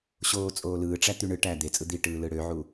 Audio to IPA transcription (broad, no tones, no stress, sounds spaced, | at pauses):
ɕ oː t͡sʼ oː l ɯː ʈ͡ʂ æ t̪ y ɳ ɯ ʈ æː d̪ e t͡sʼ ɯ d̪ i ʈ ɯː l ɯ ɽ ø ʕ u